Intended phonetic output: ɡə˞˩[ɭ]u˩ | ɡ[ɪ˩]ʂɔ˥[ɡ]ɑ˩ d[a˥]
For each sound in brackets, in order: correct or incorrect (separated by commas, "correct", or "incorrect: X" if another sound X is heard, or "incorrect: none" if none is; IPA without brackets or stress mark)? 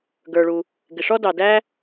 correct, correct, incorrect: d, incorrect: æ˥